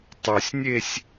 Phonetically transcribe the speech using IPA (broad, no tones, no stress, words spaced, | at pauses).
tˤusʲnʲesʲ